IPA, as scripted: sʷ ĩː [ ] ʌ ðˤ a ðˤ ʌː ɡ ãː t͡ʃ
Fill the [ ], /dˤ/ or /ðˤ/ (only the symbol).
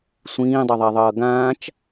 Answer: dˤ